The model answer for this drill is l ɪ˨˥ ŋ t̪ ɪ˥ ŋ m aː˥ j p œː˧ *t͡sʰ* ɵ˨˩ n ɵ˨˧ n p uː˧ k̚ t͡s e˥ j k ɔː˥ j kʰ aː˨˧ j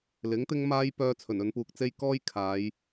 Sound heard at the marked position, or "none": t͡sʰ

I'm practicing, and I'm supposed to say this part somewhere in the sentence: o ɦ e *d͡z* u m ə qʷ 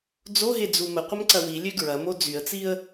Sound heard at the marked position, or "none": d͡z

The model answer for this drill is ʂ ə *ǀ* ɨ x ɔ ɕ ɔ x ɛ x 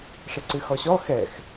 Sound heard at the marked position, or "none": ǀ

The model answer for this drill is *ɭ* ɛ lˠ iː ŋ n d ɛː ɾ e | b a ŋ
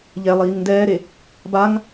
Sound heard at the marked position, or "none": ʎ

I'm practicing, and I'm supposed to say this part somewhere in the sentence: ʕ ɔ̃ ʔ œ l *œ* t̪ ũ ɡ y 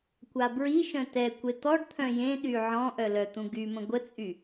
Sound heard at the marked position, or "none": œ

